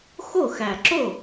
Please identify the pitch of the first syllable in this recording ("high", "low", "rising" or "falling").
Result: falling